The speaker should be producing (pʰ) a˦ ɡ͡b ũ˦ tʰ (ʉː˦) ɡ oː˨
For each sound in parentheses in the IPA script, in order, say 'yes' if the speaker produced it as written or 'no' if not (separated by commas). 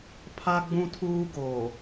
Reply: yes, no